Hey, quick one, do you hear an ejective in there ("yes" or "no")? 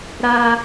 no